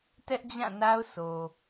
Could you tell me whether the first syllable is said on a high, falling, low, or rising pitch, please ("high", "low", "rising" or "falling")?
high